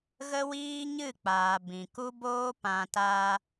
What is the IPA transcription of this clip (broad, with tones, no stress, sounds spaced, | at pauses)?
ɣ ə˦ w iː˦ ɲ ɨ˦˨ k͡p aː˨ b ĩ˨ k u˦ b oː˦ p ã˨ t a˧